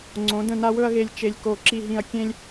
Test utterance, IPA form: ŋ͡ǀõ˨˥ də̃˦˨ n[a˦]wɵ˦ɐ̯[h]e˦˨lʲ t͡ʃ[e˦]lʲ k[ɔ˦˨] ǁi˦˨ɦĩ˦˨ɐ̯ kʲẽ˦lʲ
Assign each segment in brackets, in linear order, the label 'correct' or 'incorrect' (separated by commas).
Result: correct, incorrect, correct, incorrect